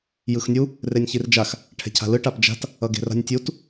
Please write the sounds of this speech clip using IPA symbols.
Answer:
j ɯ x nʲ u | r e nʲ ç i r d͡ʒ a x | ʈʰ ɛ̤ cʰ a̤ l ɯ ʈ a p d͡ʒ a̤ t | ʌ ɡ e̤ r a̤ nʲ tʲ u t

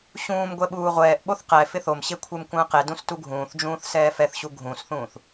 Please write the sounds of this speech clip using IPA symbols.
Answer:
ɕ ũː m ɡʷ ɛ ɓ uː ʁʷ ɛː ʔ ɓ o θ q ɛ f ɪ θ o m ɕ e kʷʰ e m kʷ ə̃ː q e d ũ s t u ɡʱ ũː θ d͡ʒ ũː θ s ɛː f ɛ θ ɕ u ɡʱ ũ s θ ũː θ

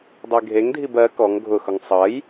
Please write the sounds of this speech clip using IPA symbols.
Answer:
dˤ e ɡʱ e ŋ dʱ i b ɜ k ɔ ŋ ɡʱ ʊ x ʊ ŋ sˤ ʌ j

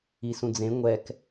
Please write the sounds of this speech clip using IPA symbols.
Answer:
i s ũ d͡z ẽ ŋʷ ɛ k

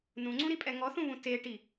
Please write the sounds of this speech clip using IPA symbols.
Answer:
n ũ ŋ͡ǀ ũ ɾ i pʼ ɛ ŋ ɔ θ ũ β ũ t e ʈ i

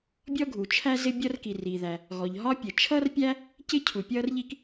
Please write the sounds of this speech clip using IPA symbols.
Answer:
bʲ ɔ˥ ɡʱ u˩ t͡ʃʰ æ˥ z ɪ˥ bʲ ʌ˥ r k i˩ r i˩ ð æ˩ | ɣ ɔ˩ ʎ ɦ ɒ˥ pʲ ə˩ t͡ʃʰ ʌ˥ r pʲ æ˥ | c ɪ˥ cʰ u˩ pʲ ʌː˥ r ʎ i˥ k

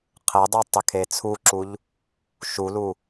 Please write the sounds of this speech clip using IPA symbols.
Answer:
qʰ ɘ dˤ u tˤ ɘ kʰ e t͡sʰ u ǁ u ʎ | ʃ u l u

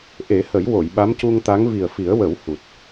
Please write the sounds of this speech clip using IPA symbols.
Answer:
ʔ e˨˩˦ h ə˨˩˦ j w o˨˩˨ j ɓ a˧˥ m c u˧ ŋ t̪ a˧˥ ŋ v i˨˩ ə̯ f i˨˩˦ ə̯ w ə˨˩˦ w h u˨˩ t̚

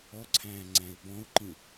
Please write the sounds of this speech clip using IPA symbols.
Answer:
ɔ ǀʰ æ̃ː ŋ͡ǀ æ̃ ɪ̯ b ɔ̃ ʊ̯ ǃ ĩ

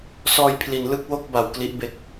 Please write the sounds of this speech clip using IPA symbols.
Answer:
s ɔː˧ j pʰ l i˩˦ n l ɯ˥˩ k̚ w o˥˩ k̚ b a˨˩ w k l i˦˥ ʔ b e˦˥ k̚

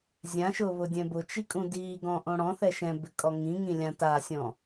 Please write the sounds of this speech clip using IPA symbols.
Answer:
zʲ ã ʃ ʊ β ʊ dʲ ɛ̃ b ʊ t͡ʃ i kʼ ũ d i ɡ ɔ̃ ʔ õ ɽ ɔ̃ θ ɛ ʃ ɛ̃ b ɪ kʼ ɔ ŋ ĩ ŋ ĩ lʲ ã t a sʲ ɔ̃

